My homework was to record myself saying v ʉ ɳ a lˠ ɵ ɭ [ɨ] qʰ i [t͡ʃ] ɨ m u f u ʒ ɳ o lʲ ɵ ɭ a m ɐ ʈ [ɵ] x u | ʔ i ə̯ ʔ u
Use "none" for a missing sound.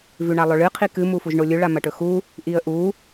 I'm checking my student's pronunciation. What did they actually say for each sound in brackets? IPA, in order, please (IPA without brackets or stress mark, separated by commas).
ɨ, k, ɵ